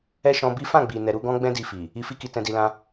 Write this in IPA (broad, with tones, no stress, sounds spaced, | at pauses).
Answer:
ɛ˦ ʃ ɔ̃˧ b i˦ f ã˦˨ ɡ͡b i˨ n ɛ˧ ɾ u˦ ɡ ɔ̃˦ ɡ͡b ɛ̃˦ d i˧ f i˨ | i˧ f i˦ k i˧ t ɛ̃˧ d i˧ l ã˦